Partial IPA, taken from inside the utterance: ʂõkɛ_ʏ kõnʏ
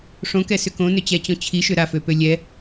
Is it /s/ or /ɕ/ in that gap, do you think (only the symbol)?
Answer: s